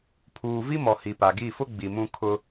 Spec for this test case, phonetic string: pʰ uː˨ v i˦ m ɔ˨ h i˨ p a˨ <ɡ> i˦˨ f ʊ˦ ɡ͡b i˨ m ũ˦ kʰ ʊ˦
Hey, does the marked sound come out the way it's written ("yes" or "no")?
yes